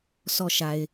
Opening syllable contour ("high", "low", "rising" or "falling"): falling